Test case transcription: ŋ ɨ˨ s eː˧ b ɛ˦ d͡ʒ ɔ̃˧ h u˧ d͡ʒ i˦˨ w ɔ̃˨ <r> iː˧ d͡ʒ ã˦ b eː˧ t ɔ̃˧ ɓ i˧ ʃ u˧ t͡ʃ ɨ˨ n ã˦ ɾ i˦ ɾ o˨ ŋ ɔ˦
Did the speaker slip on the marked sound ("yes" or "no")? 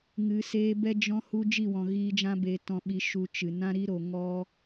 yes